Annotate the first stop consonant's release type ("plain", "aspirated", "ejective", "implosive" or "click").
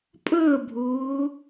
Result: ejective